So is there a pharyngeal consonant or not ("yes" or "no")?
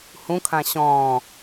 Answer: no